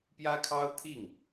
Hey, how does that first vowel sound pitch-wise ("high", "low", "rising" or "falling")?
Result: high